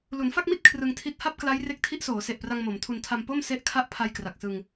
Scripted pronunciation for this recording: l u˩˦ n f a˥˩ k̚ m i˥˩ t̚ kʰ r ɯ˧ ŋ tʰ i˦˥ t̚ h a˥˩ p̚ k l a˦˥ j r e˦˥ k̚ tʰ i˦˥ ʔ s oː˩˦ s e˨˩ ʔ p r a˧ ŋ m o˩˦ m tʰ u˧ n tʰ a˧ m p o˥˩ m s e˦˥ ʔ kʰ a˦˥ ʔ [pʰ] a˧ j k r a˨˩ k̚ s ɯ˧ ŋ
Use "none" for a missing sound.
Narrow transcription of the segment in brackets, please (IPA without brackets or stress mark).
pʰ